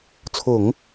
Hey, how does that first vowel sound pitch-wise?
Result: low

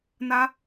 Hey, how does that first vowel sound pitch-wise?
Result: high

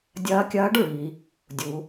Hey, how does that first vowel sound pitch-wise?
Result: rising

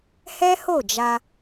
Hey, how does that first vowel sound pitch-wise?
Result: high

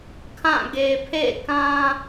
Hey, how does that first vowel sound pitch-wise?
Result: falling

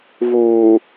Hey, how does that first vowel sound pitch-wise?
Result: low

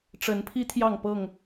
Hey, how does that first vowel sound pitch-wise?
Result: rising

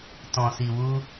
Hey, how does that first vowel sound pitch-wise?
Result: low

